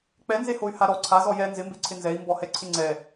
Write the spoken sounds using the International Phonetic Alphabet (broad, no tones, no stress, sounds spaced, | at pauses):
k͡p ɛ n z e h o y̯ h a ɾ ɔ ǀʰ a z ɔ j ɛ n z ɪ m b e ǀʰ ɪ n z ɛ i̯ m b ɔ h ɛ ǀʰ ɪ ŋ͡ǀ ɛ